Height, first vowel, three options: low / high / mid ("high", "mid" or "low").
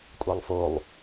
low